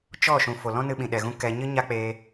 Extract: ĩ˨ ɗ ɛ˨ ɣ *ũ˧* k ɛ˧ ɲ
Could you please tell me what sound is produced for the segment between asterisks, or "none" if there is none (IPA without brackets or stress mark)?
ũ˧